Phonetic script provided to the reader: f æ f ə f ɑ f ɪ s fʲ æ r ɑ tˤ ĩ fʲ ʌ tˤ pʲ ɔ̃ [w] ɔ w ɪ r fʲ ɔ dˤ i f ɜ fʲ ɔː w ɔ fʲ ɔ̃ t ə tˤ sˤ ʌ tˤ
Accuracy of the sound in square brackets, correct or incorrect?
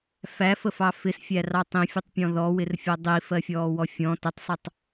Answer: incorrect